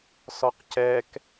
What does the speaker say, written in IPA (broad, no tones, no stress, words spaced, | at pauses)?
sɔqcɛk